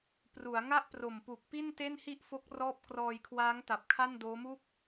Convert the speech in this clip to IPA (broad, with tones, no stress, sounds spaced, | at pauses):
p r u˩˦ a̯ ŋ a˥˩ ʔ p r o˨˩ m p u˨˩ k̚ p i˥˩ n t e˥˩ n h i˥˩ ʔ f o˦˥ k̚ r ɔː˦˥ p̚ k r ɔː˧ j kʰ w aː˦˥ ŋ t a˨˩ p̚ kʰ a˥˩ n d oː˦˥ m u˥˩ k̚